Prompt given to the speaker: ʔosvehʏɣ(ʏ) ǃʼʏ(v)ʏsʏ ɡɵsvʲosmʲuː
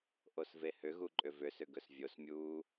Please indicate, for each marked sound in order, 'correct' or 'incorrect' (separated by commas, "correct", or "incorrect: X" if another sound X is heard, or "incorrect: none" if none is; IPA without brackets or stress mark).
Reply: incorrect: u, correct